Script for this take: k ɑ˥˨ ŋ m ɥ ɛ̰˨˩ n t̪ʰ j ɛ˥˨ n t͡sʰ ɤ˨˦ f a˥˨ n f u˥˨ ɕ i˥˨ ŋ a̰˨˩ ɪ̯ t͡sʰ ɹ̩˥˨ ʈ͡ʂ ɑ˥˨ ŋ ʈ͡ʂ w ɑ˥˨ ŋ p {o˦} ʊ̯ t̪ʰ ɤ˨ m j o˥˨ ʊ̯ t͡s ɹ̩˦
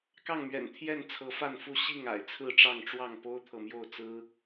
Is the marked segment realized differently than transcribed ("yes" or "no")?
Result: no